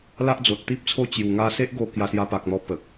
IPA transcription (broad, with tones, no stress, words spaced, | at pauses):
la˦ʔd͡zo˨t̚t̪i˦p̚t͡sʰo˥˧ t͡ɕju˨˩ŋa˧se˦ʔ ɡo˧ kja˧sja˧pa˨k̚n̪ɔ˧ pə˨k̚